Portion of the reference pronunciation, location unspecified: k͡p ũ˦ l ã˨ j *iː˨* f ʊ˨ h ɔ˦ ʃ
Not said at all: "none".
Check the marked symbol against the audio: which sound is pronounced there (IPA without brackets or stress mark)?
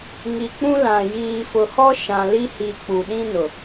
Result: iː˨